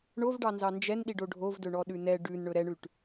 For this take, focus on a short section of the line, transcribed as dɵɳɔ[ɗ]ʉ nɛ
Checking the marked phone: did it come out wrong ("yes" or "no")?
no